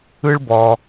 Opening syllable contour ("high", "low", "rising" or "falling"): high